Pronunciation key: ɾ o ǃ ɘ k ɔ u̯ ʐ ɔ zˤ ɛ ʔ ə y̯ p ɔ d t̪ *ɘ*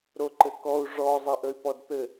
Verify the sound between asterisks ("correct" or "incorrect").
correct